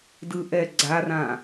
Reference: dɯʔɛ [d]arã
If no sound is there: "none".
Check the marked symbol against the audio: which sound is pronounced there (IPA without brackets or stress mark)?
ɡ͡ǀ